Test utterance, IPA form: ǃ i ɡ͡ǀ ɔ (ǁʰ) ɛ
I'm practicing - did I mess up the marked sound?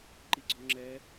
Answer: yes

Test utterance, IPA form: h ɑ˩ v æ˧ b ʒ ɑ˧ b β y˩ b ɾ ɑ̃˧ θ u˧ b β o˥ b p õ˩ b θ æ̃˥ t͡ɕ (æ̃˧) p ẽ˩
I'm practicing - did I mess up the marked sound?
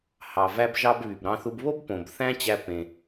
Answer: yes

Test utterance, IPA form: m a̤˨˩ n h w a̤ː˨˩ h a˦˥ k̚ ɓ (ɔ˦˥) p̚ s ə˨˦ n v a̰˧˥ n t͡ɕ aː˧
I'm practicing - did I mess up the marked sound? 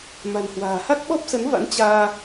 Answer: no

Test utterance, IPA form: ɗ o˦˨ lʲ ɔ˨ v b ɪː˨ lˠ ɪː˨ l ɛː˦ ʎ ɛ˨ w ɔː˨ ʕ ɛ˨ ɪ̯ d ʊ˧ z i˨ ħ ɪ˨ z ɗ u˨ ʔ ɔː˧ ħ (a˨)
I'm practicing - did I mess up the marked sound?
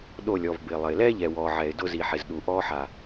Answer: no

